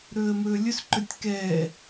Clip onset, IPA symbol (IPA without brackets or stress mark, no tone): ɾ